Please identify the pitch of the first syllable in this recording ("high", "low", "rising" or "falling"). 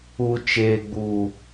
low